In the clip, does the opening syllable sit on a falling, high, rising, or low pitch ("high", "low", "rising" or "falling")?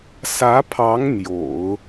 rising